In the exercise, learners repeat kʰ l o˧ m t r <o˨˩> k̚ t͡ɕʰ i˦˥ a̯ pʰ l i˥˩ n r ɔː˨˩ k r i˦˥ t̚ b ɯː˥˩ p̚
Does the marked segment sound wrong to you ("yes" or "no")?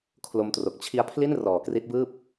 no